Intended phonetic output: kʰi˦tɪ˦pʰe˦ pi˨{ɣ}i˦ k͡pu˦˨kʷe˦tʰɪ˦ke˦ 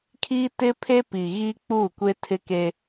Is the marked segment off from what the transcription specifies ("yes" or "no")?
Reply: no